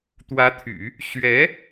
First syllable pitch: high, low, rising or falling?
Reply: rising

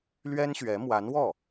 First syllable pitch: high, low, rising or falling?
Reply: high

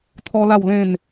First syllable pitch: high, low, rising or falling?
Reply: high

